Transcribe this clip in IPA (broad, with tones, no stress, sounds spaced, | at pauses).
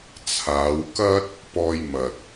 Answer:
t͡sʰ aː˨˧ w k ɐ˥ t̚ | p ɔː˧ j m ɐ˨ t̚